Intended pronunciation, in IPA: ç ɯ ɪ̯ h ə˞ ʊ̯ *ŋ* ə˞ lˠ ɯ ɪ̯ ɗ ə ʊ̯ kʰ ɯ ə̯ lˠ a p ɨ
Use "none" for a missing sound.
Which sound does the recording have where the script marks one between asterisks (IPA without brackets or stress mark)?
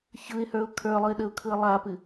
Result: kʰ